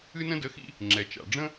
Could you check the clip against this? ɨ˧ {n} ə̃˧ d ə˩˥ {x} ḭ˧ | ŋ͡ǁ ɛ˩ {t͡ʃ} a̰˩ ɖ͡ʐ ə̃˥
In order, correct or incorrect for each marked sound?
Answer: correct, correct, correct

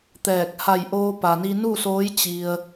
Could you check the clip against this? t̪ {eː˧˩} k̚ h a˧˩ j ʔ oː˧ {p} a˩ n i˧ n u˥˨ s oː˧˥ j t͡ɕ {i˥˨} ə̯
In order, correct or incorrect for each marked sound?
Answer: incorrect: ɛː˧˩, correct, incorrect: i˧

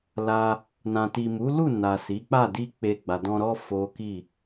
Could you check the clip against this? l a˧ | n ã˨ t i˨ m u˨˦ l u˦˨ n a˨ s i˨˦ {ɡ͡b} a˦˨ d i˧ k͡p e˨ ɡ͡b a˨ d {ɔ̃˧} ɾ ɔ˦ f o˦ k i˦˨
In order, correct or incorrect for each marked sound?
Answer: incorrect: k͡p, correct

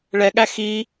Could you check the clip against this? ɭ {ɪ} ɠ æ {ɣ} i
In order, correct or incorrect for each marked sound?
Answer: incorrect: ɛ, incorrect: x

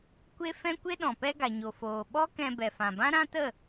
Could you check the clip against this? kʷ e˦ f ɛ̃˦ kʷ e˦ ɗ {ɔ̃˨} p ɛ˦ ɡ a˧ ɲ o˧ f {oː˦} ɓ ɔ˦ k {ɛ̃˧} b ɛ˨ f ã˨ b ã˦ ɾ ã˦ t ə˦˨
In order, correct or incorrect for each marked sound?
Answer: correct, incorrect: oː˧, correct

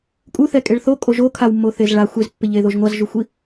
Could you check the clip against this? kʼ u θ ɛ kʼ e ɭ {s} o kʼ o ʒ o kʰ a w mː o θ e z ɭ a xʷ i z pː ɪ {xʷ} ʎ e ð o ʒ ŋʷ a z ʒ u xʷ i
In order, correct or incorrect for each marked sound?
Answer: incorrect: θ, incorrect: none

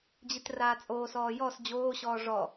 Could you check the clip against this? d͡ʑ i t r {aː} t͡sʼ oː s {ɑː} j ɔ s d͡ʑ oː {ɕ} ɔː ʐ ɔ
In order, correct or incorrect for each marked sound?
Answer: correct, incorrect: ɔː, correct

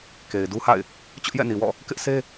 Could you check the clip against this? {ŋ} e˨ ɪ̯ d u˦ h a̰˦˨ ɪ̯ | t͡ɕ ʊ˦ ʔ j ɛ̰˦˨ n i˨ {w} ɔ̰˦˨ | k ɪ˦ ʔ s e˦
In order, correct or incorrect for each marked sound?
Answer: incorrect: k, correct

